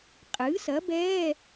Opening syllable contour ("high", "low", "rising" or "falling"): rising